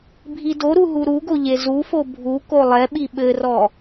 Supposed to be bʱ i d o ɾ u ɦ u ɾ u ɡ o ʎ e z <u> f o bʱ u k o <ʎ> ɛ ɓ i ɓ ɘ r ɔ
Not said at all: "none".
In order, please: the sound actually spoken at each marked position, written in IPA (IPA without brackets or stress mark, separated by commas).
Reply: u, lˠ